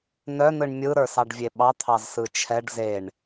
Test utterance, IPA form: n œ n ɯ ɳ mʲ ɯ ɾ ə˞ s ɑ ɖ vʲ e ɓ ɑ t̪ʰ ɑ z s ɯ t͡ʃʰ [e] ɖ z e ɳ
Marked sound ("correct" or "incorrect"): incorrect